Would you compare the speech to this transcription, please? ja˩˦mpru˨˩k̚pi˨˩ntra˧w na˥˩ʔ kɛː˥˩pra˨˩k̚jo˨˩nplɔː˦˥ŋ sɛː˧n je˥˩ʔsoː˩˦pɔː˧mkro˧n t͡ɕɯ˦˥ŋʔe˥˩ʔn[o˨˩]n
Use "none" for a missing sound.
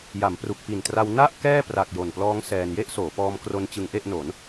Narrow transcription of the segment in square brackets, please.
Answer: o˩˦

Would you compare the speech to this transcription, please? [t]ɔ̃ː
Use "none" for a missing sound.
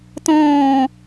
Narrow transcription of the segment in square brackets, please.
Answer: t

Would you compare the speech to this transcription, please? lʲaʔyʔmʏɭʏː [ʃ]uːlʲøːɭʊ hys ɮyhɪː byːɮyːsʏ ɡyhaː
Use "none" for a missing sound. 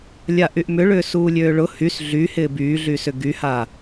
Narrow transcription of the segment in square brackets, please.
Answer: s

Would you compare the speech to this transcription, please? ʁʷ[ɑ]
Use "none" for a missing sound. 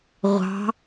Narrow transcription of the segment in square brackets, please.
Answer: ɑ̤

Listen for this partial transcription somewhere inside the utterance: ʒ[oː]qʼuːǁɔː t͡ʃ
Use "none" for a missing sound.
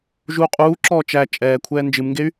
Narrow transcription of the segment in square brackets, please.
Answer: uː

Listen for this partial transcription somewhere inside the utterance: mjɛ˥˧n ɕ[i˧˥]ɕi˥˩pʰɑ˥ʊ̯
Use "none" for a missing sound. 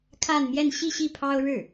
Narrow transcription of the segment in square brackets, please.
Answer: i˥˧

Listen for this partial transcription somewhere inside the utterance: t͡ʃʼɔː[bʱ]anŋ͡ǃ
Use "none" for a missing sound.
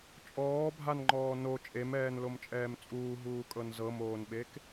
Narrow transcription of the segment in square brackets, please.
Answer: bʱ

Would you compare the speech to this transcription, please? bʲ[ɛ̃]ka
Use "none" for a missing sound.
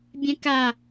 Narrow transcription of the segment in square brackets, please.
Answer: ɛ̃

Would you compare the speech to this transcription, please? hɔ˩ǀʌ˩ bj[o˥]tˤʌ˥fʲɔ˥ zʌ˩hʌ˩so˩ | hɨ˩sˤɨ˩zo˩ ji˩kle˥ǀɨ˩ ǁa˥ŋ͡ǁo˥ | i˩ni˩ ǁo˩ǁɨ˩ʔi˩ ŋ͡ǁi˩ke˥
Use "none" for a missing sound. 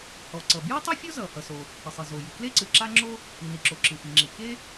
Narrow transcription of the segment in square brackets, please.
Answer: o˥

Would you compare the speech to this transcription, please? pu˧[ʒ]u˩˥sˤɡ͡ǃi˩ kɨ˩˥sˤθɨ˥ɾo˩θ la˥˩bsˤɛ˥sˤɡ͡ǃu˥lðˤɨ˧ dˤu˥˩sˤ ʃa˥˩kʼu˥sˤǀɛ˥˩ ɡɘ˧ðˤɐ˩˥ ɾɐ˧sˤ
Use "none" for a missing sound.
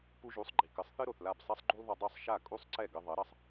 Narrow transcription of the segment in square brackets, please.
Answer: ʒ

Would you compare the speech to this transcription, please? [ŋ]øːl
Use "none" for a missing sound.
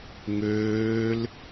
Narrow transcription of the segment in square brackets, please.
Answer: ŋ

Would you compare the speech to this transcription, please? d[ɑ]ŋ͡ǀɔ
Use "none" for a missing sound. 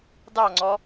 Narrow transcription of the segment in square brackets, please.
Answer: ɑ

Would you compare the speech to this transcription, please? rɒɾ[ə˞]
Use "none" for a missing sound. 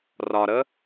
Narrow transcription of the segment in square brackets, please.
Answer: ə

